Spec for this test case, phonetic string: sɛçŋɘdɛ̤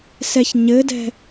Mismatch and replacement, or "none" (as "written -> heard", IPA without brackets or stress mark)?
ŋ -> ɲ